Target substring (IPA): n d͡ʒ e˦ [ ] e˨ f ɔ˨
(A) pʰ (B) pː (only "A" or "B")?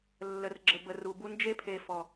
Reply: A